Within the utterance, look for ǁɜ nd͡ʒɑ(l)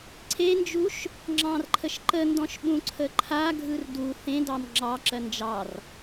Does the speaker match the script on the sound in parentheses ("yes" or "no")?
no